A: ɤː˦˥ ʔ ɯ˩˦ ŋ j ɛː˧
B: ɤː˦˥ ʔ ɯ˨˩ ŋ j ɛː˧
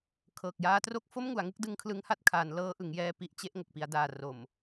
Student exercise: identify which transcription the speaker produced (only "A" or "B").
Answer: A